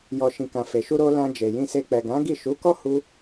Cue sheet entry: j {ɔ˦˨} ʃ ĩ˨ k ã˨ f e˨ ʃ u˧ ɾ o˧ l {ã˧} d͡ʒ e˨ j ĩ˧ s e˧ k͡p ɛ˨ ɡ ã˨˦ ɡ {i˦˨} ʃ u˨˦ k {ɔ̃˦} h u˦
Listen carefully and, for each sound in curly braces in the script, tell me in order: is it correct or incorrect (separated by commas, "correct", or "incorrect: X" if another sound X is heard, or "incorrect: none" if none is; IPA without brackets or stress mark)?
incorrect: ɔ˨, correct, correct, incorrect: ɔ˦